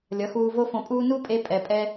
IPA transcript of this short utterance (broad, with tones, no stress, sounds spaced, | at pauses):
lʲ ʌ˨˦ x uː˧ v o˦ f õ˧ pʼ uː˦ n u˦ pʼ e˧ pʼ ɛ˨ pʼ ɛ˧